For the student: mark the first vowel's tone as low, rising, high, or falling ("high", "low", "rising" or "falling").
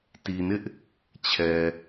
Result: low